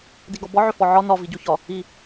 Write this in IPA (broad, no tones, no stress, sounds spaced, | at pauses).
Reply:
d i ɡ ɒ b ɒ ʕ ʏ f ɔ ʕ ɒ n ɒ v i ɟ o ç ɒ | i